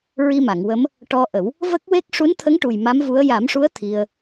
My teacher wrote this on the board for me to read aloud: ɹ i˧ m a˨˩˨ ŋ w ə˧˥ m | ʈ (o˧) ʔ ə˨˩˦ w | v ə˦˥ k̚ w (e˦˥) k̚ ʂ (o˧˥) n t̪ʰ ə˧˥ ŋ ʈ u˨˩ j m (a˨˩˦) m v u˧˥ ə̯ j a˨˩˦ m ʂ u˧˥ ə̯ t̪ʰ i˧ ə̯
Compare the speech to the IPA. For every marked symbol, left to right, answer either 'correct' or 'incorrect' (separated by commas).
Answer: incorrect, correct, incorrect, incorrect